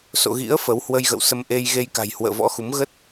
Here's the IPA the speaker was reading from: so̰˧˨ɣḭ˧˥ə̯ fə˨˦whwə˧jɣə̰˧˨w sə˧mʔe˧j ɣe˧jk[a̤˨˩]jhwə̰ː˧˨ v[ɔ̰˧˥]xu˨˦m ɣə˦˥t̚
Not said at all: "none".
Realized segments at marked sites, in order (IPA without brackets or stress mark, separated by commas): a̤˨˩, ɔ̰˧˥